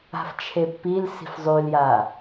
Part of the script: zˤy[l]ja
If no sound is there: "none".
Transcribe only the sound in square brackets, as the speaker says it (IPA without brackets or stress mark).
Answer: l